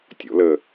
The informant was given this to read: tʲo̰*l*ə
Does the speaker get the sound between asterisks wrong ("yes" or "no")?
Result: no